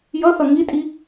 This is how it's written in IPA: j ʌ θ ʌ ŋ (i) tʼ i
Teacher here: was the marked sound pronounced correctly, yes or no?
yes